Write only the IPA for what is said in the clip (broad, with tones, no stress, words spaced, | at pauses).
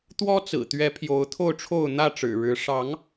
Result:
t̪wɔ˦t͡sɹ̩˨˩t̪ɥɛ˨˦ pʰjo˨˦ʊ̯t̪ʰo˥˨ʊ̯ʈ͡ʂʰo˥˨ʊ̯ n̪ä˥˨ʈ͡ʂɻ̩˨˩ɻɻ̩˨˦ ʂɑ˨˦ŋ